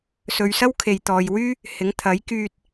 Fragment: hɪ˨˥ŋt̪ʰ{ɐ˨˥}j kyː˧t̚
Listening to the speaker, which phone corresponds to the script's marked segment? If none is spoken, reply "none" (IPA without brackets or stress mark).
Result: ɐ˨˥